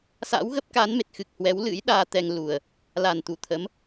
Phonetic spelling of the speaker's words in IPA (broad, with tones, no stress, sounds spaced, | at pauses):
s a̰˧˥ w ɣ ə˦˥ p̚ k a˨˦ n m e˨˩ t̚ x ɨ˨˩ k̚ h w ɛ˨˦ w l ɨ̰˧˥ j ɗ aː˧ t̪ ɛ˧ ŋ l u˨˩ ə̯ | l a˨˩ n t̪ u˧˩ t̪ʰ ə˨˦ m